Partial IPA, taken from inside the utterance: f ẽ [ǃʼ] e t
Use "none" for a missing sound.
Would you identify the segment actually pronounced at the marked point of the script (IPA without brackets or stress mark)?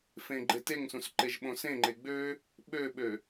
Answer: ɡ͡ǃ